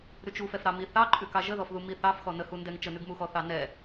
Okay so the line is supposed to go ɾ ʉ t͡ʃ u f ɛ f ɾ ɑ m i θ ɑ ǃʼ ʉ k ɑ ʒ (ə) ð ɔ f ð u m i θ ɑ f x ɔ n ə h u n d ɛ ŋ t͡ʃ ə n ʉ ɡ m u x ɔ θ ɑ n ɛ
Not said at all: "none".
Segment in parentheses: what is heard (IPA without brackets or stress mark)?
ə